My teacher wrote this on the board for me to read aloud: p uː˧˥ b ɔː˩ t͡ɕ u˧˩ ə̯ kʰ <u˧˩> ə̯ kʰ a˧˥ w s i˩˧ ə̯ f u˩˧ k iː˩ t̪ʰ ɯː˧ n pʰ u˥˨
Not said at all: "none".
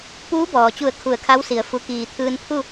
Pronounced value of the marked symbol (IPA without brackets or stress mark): u˧˩